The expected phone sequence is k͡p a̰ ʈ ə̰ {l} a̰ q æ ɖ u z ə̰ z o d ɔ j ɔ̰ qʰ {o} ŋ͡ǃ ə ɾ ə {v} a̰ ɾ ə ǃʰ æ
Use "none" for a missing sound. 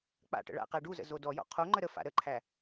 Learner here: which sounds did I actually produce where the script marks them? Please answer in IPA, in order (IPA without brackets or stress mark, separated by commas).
ɭ, o, f